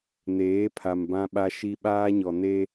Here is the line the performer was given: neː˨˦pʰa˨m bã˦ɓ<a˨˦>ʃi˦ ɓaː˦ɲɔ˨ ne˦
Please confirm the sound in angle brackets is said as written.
no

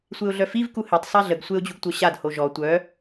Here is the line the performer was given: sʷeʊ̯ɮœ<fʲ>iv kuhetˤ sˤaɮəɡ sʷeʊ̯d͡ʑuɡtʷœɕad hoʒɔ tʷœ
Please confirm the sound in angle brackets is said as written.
no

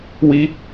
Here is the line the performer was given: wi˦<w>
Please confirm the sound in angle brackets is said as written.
no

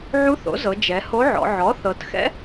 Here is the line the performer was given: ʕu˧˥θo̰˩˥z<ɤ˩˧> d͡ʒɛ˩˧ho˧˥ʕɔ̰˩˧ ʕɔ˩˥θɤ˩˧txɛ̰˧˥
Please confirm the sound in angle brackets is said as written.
yes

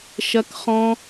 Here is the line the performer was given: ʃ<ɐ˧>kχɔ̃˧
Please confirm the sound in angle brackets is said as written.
yes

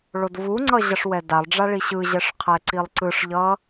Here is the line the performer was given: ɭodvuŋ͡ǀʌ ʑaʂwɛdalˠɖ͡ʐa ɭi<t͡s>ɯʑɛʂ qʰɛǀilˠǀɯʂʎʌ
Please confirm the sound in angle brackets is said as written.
no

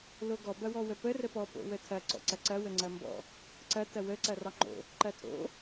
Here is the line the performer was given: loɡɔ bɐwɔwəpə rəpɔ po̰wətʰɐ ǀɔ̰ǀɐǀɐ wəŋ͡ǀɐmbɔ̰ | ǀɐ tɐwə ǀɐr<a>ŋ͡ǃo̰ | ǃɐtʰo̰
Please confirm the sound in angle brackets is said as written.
no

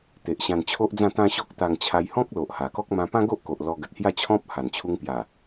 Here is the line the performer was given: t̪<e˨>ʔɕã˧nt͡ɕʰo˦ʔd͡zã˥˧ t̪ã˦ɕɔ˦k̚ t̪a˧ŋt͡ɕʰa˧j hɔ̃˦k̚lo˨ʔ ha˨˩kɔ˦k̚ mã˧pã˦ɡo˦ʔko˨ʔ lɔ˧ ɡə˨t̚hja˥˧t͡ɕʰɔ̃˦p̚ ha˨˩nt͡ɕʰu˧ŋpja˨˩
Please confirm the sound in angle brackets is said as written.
yes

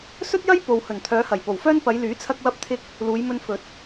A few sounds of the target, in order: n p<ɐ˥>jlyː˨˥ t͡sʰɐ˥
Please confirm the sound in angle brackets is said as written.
no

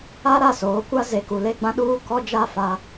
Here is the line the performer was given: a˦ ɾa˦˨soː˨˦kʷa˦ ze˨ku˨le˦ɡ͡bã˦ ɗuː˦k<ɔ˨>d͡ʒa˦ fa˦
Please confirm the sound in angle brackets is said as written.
no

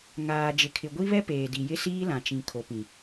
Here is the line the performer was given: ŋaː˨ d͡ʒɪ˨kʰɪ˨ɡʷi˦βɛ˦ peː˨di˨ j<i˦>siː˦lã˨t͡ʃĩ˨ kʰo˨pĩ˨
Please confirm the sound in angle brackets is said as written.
no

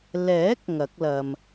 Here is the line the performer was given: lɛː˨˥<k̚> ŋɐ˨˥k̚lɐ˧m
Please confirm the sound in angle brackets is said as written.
yes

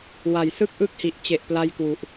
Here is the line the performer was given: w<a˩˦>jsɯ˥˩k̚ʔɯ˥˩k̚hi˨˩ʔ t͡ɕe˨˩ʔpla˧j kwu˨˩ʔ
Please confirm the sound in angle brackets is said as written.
yes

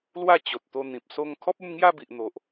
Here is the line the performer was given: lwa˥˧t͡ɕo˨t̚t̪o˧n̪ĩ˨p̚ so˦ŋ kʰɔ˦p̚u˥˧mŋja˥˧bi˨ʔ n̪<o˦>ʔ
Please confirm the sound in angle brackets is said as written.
no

